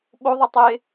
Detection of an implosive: present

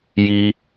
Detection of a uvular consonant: absent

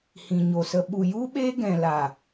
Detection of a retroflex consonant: absent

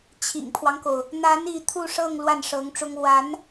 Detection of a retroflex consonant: present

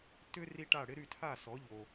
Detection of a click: absent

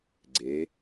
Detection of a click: present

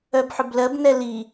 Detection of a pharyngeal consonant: present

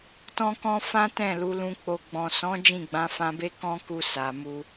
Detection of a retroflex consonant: absent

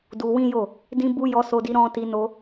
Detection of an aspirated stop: absent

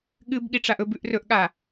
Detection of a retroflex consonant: present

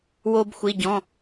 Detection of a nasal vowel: present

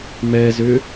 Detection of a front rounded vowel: present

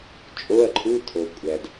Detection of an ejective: present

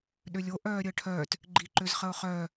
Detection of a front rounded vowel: present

